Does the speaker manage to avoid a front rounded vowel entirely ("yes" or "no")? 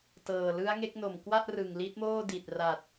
yes